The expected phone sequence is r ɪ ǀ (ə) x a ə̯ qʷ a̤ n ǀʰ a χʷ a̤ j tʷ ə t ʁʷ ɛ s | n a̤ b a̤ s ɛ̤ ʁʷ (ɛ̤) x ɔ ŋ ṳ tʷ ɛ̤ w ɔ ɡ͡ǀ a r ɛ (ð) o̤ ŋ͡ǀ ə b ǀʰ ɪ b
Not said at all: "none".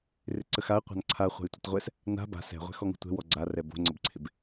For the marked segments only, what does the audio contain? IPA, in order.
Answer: ə, ɛ̤, b

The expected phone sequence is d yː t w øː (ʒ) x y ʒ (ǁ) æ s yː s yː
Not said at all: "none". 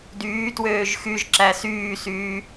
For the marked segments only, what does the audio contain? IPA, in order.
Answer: ʒ, ǁ

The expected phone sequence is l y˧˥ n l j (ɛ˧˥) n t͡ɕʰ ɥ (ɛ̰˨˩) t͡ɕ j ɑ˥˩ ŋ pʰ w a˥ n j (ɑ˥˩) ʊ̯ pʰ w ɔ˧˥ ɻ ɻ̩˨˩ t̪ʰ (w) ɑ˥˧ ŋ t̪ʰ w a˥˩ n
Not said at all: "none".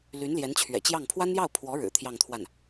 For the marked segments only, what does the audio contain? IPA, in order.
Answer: ɛ˧˥, ɛ̰˨˩, ɑ˥˩, j

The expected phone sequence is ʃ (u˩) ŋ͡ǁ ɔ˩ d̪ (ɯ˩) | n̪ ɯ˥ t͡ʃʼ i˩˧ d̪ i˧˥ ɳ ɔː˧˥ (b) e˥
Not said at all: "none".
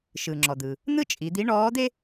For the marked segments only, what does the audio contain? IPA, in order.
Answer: ɯ˩, ɯ˩, d̪

